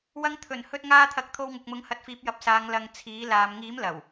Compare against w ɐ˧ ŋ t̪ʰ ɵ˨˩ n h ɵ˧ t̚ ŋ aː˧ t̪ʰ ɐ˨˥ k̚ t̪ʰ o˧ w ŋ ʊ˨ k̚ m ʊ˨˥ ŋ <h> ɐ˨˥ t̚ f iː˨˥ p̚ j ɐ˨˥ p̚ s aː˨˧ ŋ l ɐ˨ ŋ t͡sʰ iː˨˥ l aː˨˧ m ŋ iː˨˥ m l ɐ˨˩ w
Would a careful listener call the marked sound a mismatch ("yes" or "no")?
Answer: no